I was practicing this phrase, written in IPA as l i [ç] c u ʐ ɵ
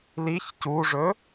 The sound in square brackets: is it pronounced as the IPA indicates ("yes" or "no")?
yes